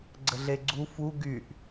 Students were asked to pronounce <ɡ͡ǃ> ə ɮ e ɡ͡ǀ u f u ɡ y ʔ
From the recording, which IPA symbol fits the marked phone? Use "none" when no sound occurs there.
ɡ͡ǀ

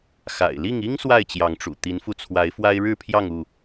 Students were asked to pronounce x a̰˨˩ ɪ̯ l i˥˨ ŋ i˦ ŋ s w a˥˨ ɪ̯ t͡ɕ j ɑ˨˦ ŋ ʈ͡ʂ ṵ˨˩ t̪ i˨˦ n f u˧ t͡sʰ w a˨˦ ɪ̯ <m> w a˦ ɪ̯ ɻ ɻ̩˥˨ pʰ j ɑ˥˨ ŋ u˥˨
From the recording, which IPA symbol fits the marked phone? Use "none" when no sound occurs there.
f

